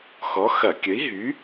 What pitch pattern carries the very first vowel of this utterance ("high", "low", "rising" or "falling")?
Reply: rising